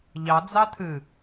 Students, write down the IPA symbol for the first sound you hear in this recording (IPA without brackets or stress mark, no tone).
ʎ